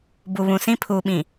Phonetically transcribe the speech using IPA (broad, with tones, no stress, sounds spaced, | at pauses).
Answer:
b u˨ β ũ˨ s ĩ˦ pʰ uː˨ ɓ ĩ˨